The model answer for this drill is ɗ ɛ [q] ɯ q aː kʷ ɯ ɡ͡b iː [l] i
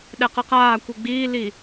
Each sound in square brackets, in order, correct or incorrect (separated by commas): correct, correct